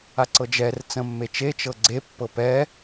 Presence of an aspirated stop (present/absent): absent